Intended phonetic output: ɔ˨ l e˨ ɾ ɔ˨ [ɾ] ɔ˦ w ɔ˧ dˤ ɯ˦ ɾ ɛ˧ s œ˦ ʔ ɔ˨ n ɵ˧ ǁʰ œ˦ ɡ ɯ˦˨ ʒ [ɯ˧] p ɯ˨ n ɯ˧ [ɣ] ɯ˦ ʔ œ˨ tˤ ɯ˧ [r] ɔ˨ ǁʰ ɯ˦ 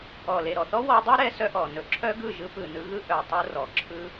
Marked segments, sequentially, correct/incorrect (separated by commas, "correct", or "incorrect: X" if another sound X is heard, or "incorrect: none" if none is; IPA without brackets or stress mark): incorrect: θ, correct, correct, correct